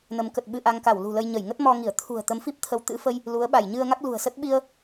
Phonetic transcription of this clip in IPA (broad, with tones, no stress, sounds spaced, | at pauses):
n ə˨˦ m k ə˨˩ t̚ ɓ ɨ˧ ʔ a˧ ŋ k a˧˩ w l ṳ˨˩ l ə˧ j ɲ ə˧˩ j ŋ ə˦˥ t̚ m ɔ˧ ŋ i˧˩ ə̯ t̪ʰ ṳ˨˩ ə̯ t̪ ə˨˦ m f i˦˥ p̚ t̪ʰ ə˨˦ w t̪ ɨ̰˧˥ f ə˧ j | l u˨˦ ə̯ ɓ a˧˩ j ɲ ɨ˧ ə̯ ŋ a˦˥ k̚ l ṳ˨˩ ə̯ s ə˦˥ t̚ ɓ i˧ ə̯